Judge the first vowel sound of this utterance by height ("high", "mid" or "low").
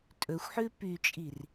mid